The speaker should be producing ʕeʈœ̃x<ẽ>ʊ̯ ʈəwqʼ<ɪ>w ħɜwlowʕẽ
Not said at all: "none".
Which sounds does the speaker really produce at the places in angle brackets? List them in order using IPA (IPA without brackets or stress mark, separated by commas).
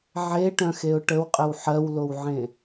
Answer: e, ɪ